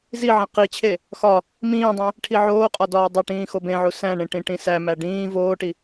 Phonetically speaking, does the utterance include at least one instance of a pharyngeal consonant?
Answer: yes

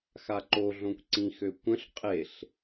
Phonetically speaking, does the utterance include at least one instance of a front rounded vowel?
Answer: yes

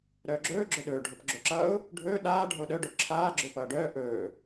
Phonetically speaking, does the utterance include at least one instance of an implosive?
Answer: yes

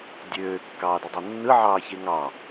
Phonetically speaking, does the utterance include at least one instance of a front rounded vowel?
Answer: yes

